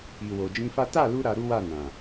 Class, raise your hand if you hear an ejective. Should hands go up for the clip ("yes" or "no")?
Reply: no